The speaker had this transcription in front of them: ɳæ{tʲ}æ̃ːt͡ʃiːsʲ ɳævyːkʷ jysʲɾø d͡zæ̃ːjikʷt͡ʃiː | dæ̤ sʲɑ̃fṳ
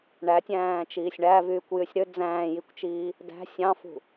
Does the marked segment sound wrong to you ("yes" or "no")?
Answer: no